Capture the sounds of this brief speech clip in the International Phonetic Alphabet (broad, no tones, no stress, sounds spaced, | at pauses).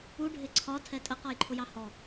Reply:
u ɖʱ ɪ ǀʰ ɒ tʰ ɛ tʼ ə q ɔ j ǃʰ ʊ j ɑ h ɔ